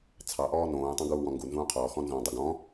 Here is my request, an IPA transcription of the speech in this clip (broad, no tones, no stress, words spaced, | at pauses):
t͡sʰɑʔɔː nõːtˤõ ɡuːwɔ̃ŋɡu nzũːqʰɔːxɔ̃ nzõːdˤʉɡɔ̃